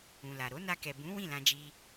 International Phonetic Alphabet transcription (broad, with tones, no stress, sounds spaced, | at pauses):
ũ˨ l a˨ ɾ o˨˦ n a˧ k ɛ˨ b ũ˨˦ w ĩ˦˨ l ã˧ d͡ʒ i˧